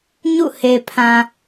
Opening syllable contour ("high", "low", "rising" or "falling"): falling